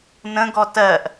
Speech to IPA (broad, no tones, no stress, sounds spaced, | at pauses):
n ə̃ ɡ ɔ t ɜ ʔ